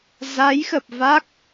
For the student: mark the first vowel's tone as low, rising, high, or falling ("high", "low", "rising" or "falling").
rising